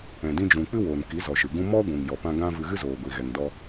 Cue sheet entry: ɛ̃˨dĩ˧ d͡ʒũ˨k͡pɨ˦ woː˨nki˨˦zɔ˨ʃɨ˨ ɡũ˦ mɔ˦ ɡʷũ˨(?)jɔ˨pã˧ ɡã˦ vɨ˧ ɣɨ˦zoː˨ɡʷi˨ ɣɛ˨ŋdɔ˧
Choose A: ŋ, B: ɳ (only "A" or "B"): A